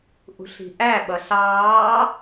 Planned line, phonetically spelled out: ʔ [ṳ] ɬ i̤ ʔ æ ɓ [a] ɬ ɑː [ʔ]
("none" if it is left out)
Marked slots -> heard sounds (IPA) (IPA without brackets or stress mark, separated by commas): ṳ, ʌ, none